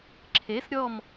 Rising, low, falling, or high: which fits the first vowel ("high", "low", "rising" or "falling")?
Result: rising